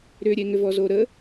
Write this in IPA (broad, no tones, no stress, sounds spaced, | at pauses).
ɾ ʏ ɾʲ e ŋ ʏ v ɔ z o ɾ ə